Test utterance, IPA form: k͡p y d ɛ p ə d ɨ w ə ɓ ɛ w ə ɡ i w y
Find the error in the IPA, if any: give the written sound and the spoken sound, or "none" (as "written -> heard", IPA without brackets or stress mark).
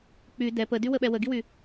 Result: ɨ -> y